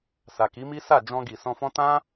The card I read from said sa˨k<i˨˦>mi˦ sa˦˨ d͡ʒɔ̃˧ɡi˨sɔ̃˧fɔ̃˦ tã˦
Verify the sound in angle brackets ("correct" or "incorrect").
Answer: correct